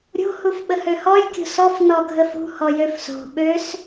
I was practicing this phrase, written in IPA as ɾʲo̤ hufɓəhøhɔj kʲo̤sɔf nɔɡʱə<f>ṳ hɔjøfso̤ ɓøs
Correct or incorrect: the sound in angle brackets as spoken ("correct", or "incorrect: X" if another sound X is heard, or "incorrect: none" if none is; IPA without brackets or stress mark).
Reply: correct